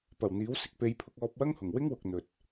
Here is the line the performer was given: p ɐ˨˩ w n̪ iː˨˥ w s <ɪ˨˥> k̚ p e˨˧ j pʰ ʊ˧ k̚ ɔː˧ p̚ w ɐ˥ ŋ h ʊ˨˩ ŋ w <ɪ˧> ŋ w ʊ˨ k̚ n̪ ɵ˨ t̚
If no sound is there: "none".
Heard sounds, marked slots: ɪ˧, ɪ˥

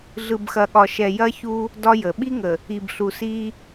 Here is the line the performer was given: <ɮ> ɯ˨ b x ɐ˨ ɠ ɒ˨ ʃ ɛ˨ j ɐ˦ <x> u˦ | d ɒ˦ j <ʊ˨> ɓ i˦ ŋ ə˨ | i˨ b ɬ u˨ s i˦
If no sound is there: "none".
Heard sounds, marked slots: ɮ, ç, ə˨

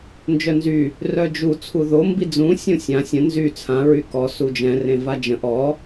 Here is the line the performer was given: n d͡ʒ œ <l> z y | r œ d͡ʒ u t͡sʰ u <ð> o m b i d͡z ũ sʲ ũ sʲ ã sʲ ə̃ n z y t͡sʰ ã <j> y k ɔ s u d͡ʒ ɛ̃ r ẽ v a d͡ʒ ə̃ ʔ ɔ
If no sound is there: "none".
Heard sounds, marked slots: n, ð, ɹ

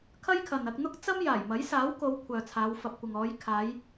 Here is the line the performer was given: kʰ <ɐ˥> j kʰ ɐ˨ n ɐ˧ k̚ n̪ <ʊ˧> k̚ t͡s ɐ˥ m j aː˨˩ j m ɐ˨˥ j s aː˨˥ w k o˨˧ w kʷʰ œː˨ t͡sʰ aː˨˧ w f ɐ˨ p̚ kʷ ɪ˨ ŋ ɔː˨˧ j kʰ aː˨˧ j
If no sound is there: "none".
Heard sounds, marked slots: ɐ˥, ʊ˥

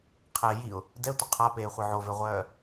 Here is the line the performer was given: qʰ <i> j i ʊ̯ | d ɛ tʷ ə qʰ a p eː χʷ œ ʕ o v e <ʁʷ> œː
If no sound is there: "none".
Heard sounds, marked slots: e, ʁʷ

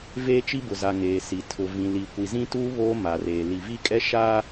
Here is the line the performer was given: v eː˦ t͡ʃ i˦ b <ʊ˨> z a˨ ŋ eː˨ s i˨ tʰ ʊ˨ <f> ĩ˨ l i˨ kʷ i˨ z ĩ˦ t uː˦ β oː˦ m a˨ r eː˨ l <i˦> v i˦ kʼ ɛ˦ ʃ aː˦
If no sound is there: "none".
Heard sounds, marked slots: ʊ˨, v, i˨

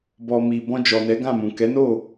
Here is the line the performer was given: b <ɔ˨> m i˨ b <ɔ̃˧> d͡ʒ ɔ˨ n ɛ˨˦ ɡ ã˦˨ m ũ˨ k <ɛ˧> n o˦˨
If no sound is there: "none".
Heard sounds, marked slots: ɔ˨, ɔ̃˧, ɛ˨˦

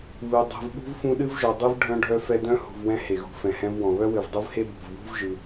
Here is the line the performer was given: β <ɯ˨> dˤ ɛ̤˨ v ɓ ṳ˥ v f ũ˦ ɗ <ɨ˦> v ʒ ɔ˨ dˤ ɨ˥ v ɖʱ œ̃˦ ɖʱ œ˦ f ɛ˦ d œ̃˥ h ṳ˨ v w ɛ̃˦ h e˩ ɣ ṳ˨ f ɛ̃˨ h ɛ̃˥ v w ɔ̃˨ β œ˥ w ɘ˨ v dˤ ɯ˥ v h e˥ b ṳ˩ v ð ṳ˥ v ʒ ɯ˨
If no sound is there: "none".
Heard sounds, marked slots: ɯ˨, ɨ˥

